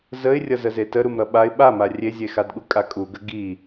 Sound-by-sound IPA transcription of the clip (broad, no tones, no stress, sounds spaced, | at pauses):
z ə ɪ̯ rʲ ʌ z ə z e t ə ɾ u m ɾ ʌ ɓ a ɪ̯ ɓ a m a rʲ e zʲ e x a d ɠ u kʼ a kʼ u ɡ ə ɡ i